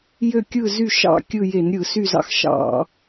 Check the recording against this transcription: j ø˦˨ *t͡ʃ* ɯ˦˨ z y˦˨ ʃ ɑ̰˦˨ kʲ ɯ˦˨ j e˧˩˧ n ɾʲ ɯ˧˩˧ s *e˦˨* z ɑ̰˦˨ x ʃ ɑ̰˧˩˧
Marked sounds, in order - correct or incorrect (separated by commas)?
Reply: incorrect, incorrect